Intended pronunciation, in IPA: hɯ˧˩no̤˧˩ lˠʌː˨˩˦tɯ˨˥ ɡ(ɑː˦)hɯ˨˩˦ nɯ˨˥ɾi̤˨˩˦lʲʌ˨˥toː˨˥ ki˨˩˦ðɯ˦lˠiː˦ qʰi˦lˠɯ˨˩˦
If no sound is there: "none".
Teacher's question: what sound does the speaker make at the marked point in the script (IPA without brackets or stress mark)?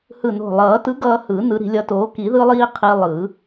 ʌː˦